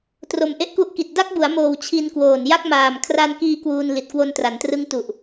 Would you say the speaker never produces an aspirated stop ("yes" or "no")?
no